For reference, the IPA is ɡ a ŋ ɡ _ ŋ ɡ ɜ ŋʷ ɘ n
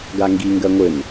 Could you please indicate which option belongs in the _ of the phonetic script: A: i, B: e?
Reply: A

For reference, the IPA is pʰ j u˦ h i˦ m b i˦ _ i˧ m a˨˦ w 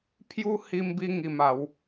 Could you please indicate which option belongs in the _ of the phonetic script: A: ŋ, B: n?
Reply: A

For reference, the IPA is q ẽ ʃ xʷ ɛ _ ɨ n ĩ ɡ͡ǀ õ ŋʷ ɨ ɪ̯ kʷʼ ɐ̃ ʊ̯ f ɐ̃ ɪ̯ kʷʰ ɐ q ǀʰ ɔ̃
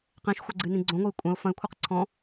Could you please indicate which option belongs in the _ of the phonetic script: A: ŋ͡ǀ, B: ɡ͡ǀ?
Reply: B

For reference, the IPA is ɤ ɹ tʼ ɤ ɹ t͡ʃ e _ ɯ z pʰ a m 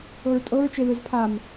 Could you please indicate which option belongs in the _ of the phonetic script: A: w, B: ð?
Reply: B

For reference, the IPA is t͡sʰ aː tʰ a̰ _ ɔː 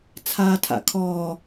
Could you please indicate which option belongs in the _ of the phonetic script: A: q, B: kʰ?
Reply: B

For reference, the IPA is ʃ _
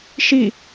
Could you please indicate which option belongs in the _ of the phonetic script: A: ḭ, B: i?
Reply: B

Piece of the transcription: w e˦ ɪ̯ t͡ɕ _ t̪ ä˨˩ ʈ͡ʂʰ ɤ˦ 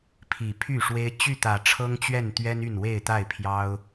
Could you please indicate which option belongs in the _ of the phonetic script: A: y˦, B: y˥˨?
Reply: B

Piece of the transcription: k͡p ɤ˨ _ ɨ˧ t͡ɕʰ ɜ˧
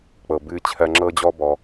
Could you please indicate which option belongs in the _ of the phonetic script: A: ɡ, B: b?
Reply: B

